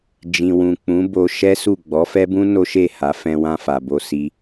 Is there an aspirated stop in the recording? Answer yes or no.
no